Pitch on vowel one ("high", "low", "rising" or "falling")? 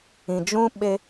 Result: low